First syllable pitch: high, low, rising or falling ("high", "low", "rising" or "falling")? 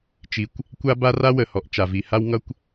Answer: low